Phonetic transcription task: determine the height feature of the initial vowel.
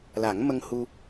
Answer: low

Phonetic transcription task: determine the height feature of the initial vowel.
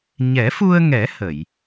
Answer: mid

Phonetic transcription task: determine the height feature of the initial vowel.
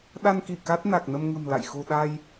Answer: low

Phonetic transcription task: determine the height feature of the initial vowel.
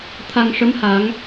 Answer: low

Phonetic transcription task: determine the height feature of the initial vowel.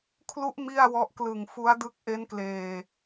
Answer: high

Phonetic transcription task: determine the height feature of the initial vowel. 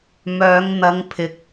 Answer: mid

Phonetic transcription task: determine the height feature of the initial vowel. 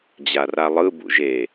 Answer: low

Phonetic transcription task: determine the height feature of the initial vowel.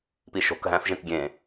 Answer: high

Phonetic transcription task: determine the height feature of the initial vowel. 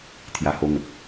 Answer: low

